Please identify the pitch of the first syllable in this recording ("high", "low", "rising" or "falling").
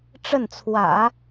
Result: falling